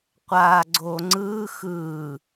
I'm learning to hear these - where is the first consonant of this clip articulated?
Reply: uvula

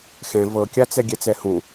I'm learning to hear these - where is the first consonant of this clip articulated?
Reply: velum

